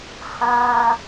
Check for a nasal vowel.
present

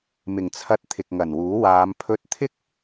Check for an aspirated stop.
present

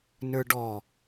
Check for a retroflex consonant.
present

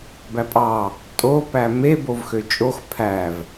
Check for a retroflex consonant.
absent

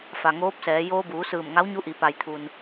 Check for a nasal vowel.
absent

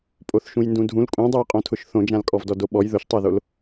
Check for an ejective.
present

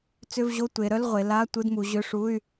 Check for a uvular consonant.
present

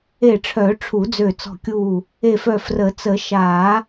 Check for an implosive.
absent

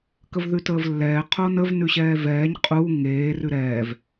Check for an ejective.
present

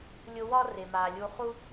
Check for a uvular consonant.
present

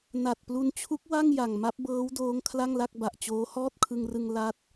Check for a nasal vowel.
absent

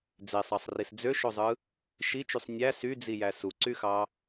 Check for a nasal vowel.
absent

